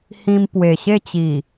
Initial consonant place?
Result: glottal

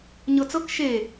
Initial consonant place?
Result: palatal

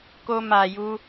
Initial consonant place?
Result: velar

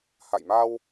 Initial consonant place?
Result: glottal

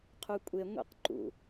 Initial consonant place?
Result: uvular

